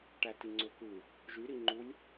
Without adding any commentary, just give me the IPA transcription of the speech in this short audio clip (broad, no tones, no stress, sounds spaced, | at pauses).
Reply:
ʈ æ t i ŋ͡ǀ ø k ɯ | ʒ y ɾ i ŋ͡ǃ u lʲ